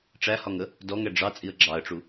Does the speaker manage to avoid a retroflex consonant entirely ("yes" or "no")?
no